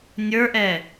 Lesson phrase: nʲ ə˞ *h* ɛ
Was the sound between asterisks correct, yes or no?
no